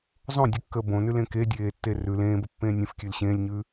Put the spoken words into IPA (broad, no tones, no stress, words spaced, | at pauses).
zˤõdʲʉkːəː bõnʉlẽ kedʲeːtːe rʉl ẽːbəpːẽː nʲɛ̃fkʲʉl ɕẽːlʲɲʉ